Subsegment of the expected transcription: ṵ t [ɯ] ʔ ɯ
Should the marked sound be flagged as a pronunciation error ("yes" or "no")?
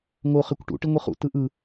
no